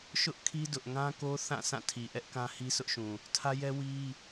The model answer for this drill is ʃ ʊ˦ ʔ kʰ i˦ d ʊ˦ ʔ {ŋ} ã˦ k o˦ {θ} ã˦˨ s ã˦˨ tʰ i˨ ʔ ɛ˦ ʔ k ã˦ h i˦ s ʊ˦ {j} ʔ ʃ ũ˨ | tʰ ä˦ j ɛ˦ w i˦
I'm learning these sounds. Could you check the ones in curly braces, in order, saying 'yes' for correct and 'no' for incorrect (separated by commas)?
yes, yes, no